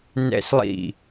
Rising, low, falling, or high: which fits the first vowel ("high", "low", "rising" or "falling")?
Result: high